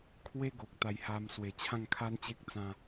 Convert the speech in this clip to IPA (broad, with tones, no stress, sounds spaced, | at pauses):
kʰ w e˦ ɡ o˨ k̚ t̪ a˧ j h a˧ m s w e˨˩ t͡ɕʰ ã˥˧ ŋ kʰ a˦ n t͡ɕ e˦ k̚ t͡s ã˦